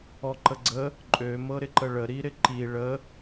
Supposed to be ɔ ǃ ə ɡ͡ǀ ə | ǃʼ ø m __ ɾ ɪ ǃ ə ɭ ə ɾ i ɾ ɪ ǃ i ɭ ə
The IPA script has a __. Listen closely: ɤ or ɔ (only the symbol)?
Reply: ɤ